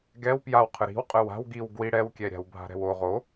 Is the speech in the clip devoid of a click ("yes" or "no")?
yes